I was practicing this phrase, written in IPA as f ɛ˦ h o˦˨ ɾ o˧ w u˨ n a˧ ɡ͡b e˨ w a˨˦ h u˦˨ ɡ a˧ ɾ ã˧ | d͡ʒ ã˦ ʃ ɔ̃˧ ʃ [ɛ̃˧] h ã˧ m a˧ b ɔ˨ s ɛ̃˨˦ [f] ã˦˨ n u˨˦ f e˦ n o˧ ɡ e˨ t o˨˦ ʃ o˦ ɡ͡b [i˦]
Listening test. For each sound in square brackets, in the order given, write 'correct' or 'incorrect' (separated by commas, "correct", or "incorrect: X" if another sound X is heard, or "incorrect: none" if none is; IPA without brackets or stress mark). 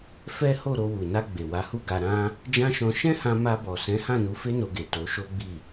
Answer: incorrect: ɛ̃˦, incorrect: h, incorrect: i˦˨